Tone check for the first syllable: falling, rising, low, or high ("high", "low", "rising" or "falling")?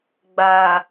low